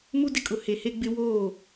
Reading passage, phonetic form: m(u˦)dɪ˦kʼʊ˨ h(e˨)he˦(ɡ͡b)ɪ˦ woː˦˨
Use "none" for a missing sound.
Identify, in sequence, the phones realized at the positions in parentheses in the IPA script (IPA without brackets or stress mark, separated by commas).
u˦, e˨, ɡ͡b